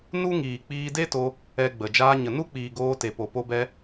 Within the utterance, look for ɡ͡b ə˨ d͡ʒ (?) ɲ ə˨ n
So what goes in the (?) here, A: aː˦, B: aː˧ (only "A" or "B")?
B